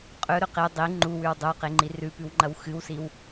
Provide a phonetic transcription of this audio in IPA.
qʼɵɾɵ qe dˤi ŋ͡ǃuwʉw dˤowqeŋ͡ǃi rʉpʉwŋ͡ǃɐw xɨwsiw

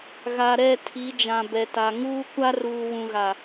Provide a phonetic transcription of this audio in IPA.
ɣa˨ɾɛ˦˨ tʰi˨˦d͡ʒã˨bɛ˨ta˨ ŋuː˦ kʷa˦ruː˨wũ˨ ɣa˨

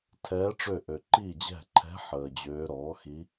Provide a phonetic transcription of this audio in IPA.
tʰɛː˧˥ʈ͡ʂø˦˨ʔø˨ ǃi˦˨d͡ʑɛ̤˦˨ǃʰɛ̤˧˥ ħəː˨d͡ʑøː˧˥ ɾɔː˩˥xi˧˥

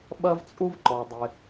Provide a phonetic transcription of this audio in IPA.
ɓɐ˥vt͡sʼu˥vǃɔ˩dˤɪ˩

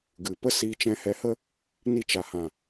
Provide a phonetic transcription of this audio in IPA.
ɡɨ˨pə˦ siː˧ t͡ʃɛ̃˧hɛ˧hə˦ | ni˧t͡ʃa˨hã˨

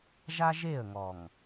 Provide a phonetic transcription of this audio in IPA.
ʒa˦ʒe˦˨ə̯ŋɔ˨ŋ

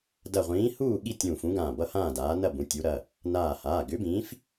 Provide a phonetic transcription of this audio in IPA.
dɐ˧˩ʁʷĩː˨˥huː˥˨ ɠi˥˨tʲũː˧˩fũ˨˥ ɡãː˧˩bʌ˥˨ hãː˥˨daː˨˥ nɐ˥˨bũ˩˧˩tʲu˨˥ ɾɐ˩˧˩ | naː˧˩haː˩˧˩ ɡʏ˨˥bĩː˨˥f

